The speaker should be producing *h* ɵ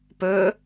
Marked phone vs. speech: incorrect: p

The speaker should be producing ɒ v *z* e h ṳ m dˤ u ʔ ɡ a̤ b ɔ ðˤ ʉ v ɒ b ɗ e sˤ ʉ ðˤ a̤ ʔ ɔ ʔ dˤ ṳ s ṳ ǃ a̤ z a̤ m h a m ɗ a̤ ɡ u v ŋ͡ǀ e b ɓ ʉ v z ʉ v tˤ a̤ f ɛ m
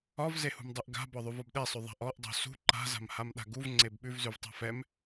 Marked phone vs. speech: correct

